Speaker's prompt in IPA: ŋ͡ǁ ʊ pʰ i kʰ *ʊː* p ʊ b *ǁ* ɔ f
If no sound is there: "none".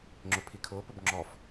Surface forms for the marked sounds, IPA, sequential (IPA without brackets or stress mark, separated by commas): ʊː, ŋ͡ǁ